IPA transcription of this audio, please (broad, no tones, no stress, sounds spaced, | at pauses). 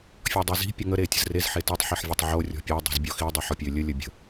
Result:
fʲ ɔ dˤ i z i̤ pʲ ə ŋ ə ɾ e tʲ ə̤ z r e z ħ e t i tˤ ħ i ħ vʲ ə tˤ ʕ o rʲ ɔ̤ pʲ ø dˤ i̤ z bʲ ɔ x i dˤ ø ħ ɔ pʲ ø lʲ ə lʲ ə bʲ ə̤